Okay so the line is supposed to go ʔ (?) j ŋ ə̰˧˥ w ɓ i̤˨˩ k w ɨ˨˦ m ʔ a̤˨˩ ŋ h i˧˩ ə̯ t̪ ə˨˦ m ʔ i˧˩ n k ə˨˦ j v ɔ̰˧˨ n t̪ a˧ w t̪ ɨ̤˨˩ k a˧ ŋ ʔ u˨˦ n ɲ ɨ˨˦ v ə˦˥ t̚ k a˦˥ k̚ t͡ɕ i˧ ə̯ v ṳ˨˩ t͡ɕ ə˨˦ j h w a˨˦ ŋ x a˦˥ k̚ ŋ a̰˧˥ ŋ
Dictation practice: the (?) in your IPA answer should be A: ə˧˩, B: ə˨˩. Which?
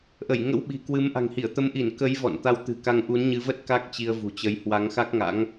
A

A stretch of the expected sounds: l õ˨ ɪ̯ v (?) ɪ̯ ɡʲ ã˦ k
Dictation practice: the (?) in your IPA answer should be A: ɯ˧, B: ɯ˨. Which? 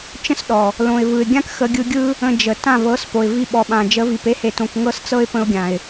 B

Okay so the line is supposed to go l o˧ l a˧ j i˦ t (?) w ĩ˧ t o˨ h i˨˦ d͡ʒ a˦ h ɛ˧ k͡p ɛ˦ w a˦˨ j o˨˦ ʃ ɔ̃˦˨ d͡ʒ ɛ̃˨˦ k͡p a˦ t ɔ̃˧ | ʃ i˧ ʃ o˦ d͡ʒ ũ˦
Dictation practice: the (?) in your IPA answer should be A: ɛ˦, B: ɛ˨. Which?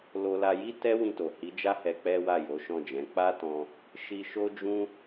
A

